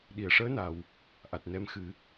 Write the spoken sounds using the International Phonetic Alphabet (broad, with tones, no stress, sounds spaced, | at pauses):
ɗ i˨˩˨ ə̯ ʂ əː˧˥ n a˨˩˨ w | ʔ a˨˩ t̚ n ɛ˧˥ m x ɨ˨˩˦